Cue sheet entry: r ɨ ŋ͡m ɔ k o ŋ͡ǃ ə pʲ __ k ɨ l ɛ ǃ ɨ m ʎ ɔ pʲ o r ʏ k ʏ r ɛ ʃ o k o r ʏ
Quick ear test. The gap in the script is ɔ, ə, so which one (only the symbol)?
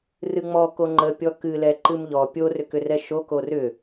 ɔ